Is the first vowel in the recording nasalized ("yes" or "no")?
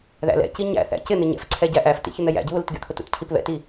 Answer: no